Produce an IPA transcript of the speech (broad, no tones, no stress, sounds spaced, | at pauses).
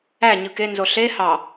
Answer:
æ ɲ ɯ k e n z o ɬ e h ɑ